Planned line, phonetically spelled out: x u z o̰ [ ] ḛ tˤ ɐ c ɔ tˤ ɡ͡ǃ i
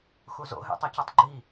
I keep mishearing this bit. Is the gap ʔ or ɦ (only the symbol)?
ɦ